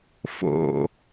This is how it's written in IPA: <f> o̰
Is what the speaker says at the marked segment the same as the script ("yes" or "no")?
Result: yes